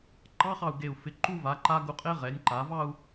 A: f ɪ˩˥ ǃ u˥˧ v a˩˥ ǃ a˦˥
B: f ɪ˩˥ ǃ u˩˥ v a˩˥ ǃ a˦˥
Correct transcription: A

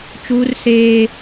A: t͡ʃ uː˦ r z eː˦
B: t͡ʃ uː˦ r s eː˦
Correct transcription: B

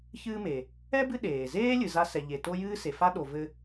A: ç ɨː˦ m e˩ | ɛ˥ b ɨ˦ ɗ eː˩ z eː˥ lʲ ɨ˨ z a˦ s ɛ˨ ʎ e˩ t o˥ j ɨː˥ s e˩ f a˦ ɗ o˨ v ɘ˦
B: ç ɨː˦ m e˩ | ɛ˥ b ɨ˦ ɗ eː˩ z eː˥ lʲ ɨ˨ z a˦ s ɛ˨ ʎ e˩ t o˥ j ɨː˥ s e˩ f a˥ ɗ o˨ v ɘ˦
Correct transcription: B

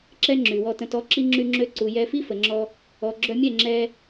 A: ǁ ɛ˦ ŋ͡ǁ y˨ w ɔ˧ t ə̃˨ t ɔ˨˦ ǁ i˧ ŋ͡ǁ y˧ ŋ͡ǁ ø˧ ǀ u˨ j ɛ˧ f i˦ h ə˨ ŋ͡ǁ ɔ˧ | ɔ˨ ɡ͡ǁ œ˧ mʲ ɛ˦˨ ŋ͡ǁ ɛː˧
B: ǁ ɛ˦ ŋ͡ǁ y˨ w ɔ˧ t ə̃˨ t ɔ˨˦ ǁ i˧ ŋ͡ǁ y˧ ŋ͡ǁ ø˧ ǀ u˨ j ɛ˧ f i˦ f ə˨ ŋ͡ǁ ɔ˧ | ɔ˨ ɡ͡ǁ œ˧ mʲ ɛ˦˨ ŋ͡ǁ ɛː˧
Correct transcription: B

